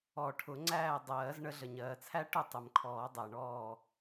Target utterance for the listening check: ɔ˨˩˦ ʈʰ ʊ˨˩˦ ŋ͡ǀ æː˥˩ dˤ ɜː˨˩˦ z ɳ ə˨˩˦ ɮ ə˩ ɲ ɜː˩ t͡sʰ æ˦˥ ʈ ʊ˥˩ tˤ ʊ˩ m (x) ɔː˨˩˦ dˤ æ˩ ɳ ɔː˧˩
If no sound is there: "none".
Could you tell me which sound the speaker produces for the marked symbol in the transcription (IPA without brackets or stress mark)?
kʰ